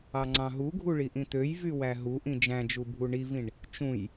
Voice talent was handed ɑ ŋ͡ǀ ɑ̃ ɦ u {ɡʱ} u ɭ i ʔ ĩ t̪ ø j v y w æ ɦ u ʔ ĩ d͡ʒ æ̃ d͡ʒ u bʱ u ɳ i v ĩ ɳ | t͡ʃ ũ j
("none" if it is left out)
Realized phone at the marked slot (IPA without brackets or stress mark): ɡʱ